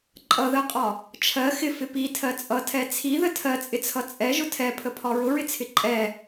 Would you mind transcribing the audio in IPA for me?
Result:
ǃʼʌðɜqʼɒ | t͡ʃʰɜ xɪfɪ pitʰɜ t͡sʼʌtʰɛ t͡sʰiðə tʰɜt͡sʼɪt͡sʰʌ t͡sʼɛʒʊ tʰɛpʰəpʰɒ ɹʊɹɪt͡sʰɪ ǃʼɛ

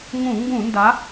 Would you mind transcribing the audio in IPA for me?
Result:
ŋũ˧˩˧ ŋɡũ˧˩˧ nda˨˥

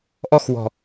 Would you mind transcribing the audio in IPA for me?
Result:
ʔɔxwɔ̤

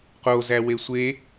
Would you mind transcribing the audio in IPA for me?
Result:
qozæ wesʷe

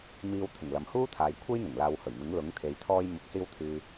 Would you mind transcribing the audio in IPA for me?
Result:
miː˧w t̪ʰɪ˨˩ŋ lɐ˨mhuː˥t̪ʰaː˨j kʷʰe˥jn̪ɪ˨˩ŋ laː˨˧whɵ˨˩ɥmɪ˨˥ŋ lʊ˨˥ŋt̪ʰe˨j t̪ʰɔː˧jmʊ˨k̚siː˧wt̪ʰyː˨

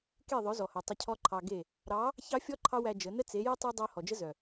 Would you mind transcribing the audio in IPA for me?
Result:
ke˦˨ ðˤœ˨˦zɔ˨hœ˨ tˤə˧cʰɔ˦ ǃʰɑ˧ɡe˦˨ | ɾɑ˨˦ | çɑ˦fʲɔ˦ ǃʰɑ˦wæ˧ d͡ʒə˨˦ nə˦ t͡se˨˦je˦ tˤœ˧ dˤœ˧ hɔ˨d͡ʒə˦zœ˨

